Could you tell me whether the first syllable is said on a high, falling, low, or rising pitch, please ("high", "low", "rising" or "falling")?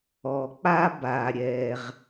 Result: low